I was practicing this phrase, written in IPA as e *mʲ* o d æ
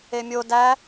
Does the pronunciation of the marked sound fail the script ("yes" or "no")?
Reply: no